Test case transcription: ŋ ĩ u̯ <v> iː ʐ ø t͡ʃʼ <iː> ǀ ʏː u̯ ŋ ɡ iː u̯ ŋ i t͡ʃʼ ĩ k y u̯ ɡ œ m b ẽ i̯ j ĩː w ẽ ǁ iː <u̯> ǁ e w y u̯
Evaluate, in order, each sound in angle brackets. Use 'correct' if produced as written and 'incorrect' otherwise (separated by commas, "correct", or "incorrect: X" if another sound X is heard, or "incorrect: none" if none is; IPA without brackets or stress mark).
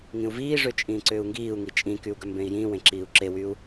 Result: correct, incorrect: ĩː, correct